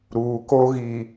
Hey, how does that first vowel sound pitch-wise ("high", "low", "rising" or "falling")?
low